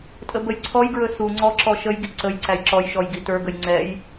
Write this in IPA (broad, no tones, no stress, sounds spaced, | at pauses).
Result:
tʼ ə b ə j ǀʰ ɔ j ɡ ɹ ɵ s u ŋ͡ǀ ɔ ǁ ɔ ʃ ə j ɡ i ǀ ə j ǀ æ j ǁ ɔ j ʃ ɔ j ɡ i t ə˞ ɡ ə j ŋ͡ǀ ɛ j